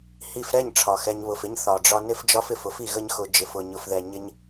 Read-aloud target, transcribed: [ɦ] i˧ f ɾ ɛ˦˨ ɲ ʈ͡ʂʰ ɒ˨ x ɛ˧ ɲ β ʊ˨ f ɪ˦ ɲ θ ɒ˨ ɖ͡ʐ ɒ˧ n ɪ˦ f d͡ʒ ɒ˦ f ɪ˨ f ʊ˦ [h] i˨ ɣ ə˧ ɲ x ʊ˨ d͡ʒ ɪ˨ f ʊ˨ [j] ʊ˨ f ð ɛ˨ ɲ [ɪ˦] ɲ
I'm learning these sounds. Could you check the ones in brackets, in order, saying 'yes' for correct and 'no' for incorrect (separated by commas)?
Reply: no, no, no, yes